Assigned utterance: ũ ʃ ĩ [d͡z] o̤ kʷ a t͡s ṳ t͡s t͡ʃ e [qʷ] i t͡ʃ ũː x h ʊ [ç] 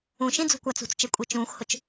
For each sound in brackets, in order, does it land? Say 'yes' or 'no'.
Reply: yes, no, no

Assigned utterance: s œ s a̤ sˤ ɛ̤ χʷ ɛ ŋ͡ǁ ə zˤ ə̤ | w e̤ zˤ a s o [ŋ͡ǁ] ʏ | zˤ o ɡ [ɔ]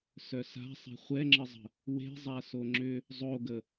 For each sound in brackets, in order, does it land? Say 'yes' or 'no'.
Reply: yes, no

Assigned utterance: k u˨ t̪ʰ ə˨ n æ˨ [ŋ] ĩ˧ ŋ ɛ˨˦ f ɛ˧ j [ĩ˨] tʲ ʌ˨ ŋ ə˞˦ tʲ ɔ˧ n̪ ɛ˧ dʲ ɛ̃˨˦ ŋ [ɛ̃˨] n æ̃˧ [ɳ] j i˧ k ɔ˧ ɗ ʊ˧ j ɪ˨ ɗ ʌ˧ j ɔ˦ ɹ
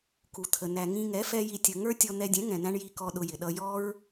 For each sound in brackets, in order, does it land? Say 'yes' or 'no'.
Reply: yes, no, yes, yes

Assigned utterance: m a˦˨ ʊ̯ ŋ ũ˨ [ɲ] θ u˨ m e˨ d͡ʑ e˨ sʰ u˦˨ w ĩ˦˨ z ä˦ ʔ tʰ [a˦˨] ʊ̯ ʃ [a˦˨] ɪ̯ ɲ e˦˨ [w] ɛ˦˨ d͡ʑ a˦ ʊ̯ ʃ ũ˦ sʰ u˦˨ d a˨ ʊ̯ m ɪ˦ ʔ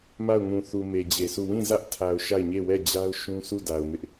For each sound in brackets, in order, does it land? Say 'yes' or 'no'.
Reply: no, no, yes, yes

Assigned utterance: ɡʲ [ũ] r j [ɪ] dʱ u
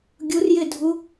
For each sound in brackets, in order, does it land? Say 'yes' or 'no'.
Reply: no, yes

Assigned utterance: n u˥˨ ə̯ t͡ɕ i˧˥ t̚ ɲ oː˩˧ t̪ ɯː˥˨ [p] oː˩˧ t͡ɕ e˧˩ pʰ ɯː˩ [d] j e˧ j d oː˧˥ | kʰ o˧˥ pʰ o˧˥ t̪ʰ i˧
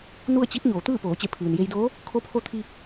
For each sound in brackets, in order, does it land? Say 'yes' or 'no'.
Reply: yes, no

